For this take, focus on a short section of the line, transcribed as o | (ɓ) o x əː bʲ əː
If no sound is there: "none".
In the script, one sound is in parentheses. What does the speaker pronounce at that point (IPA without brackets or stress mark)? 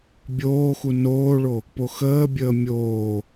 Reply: p